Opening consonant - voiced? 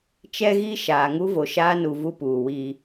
no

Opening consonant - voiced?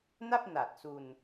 yes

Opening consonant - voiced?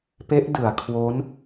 no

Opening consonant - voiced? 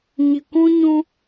yes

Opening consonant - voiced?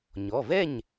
yes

